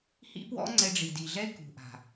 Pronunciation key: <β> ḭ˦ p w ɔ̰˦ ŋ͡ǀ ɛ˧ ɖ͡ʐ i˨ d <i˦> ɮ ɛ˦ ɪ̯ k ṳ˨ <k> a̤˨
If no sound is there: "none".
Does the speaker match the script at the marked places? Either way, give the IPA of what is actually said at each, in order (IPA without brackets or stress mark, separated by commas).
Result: h, i˨, ʔ